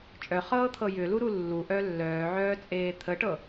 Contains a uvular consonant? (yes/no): yes